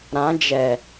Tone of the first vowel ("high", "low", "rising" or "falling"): rising